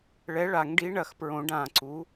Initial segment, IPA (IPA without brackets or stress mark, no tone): ɭ